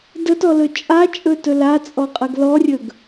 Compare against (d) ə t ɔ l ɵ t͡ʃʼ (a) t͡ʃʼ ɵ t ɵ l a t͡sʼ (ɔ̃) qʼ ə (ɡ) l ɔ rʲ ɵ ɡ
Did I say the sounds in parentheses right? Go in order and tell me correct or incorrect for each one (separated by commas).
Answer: correct, correct, incorrect, correct